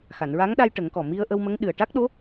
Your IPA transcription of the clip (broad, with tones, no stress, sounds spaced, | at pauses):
x a˨˩˨ n ɹ a˧˥ ŋ ɗ a˧ j ʈ ə˨˩˦ ŋ k ɔ˨˩ m i˧ ə̯ ʔ ə˧ w m ə˧˥ ŋ ɗ ɨ˨˩ ə̯ ʈ a˦˥ k̚ ɗ o˧˥